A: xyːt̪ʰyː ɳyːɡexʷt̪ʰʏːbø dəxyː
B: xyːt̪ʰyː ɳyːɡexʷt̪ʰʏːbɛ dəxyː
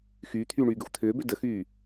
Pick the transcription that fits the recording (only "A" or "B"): A